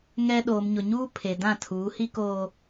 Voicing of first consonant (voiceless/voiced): voiced